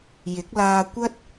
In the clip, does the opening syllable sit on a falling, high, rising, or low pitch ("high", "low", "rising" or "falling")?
rising